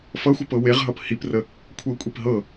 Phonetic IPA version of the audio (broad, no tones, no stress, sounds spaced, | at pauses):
f ʌ xʷ ʌ p ɤ w e ʁ ɦ ʌ p h i p r ə | kʷʰ ɤ kʷʼ i p ɦ ɤ